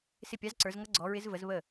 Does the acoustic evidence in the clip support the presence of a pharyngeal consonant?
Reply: no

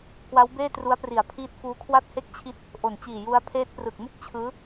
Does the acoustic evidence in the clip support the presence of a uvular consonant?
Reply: no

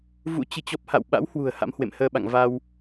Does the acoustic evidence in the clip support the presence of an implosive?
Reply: yes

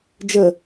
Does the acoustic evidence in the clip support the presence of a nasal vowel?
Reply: no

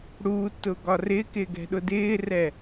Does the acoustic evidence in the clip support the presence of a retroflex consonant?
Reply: yes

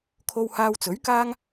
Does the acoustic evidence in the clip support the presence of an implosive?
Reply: no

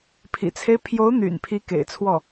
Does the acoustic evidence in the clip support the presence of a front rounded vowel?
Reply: yes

